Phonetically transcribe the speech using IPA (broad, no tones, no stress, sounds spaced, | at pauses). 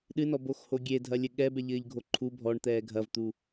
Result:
ɗ ɨ n ɔ b o x h o ɡʲ e dʱ ɐ lʲ ɘ ɠ ɛ b ɛ ʎ ɘː ʎ ɡʱ o ǃʰ u bʱ ɔ ɳ t̪ ɛː ɡʱ ɐ v t̪ u